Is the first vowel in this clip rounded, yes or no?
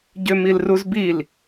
yes